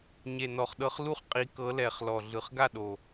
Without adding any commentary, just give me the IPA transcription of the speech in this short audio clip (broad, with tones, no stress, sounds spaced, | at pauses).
ɲ e˨˩ n ɔ˨˩ χ ɗ ɤ˨˦ χ l u˥˨ χ qʼ i˨˦ k ɤ˨˦ l ɛ˨˩ χ l ɔ˨˩ ɮ ɯ˨˩ χ ɡ a˥˨ ɗ o˨˩